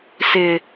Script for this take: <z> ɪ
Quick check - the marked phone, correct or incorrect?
incorrect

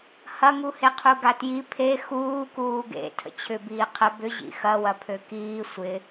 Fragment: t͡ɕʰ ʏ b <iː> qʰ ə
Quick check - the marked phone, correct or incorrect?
correct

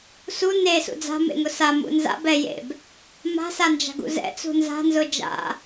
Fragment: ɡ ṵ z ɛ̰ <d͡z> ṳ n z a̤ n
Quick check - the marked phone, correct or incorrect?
incorrect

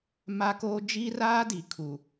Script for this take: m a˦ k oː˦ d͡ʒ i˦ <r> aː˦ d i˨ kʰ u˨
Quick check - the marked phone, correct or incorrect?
correct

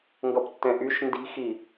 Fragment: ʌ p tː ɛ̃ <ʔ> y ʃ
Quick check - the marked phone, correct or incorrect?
correct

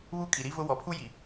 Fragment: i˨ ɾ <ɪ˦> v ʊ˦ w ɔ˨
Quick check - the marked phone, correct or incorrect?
incorrect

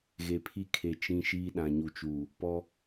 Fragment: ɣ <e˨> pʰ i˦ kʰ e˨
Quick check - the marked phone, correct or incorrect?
correct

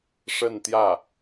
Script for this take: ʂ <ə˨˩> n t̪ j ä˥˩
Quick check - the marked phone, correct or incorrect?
incorrect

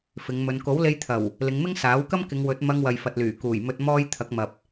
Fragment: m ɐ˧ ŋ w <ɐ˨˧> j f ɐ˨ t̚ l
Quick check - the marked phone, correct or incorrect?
incorrect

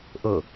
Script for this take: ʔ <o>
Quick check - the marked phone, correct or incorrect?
incorrect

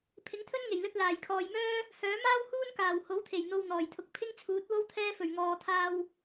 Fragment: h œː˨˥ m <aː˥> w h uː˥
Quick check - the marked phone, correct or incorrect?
correct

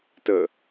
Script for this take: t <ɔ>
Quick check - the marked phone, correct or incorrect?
incorrect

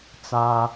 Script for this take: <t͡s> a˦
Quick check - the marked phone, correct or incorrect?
correct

